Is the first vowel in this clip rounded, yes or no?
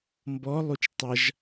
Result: yes